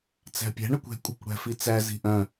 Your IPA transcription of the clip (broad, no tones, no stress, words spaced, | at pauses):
t͡sæ̤pʲæ̤ ɳœkʷɛ̤ kʷʼɛ̤kʷɽæ̤fit͡sæ zi̤ʔœ̃